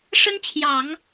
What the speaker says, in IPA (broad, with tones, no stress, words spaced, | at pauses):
ʂə˥nt͡ɕʰjɑ˨˩˦ŋ